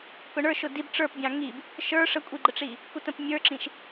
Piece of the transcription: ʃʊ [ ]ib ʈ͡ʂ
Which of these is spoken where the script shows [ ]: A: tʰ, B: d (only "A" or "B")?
B